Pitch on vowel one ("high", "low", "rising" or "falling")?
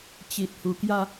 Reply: low